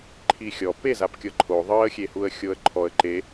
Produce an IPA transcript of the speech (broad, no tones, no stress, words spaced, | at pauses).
ǃʰixʲɔ pezapkʲɤ ǃʰo ðˤɤə̯xʲehuə̯ xʲoə̯ǃʰɔə̯ ǃe